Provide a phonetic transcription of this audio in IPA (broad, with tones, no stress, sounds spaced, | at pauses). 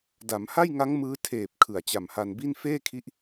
d a˩˦ m h a˥˩ j ŋ a˦˥ ŋ m ɯː˦˥ tʰ eː˨˩ p̚ kʰ ɯ˨˩ a̯ t͡ɕ a˨˩ m h a˧ n b i˥˩ n f eː˥˩ kʰ i˦˥ ʔ